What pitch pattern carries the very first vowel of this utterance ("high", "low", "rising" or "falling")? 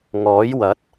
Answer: rising